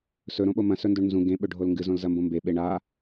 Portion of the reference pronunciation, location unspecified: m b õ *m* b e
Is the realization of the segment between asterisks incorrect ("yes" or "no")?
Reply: no